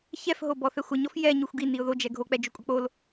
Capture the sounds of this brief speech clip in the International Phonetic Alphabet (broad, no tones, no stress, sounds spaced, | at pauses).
ç ɛ f ɦ o b ɔ θ ɛ xʷ ə ɲ ɔ f j ɛ ɲ u xʷ ɡ i n i ʊ̯ ð o d͡ʒ ɛ ɡʱ o k͡p ɛ d͡ʒ o kʷʼ ə k͡p o l